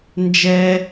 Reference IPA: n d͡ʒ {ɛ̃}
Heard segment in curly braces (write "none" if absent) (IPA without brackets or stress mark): ɛ